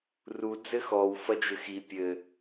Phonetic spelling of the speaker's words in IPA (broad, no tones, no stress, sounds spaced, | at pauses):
r u d͡z ɘ x ɔ w f ɐ d͡ʒ ɘ x i pʲ ɘ